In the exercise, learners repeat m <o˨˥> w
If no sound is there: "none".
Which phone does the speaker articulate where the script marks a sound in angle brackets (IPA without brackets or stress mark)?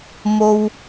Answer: o˥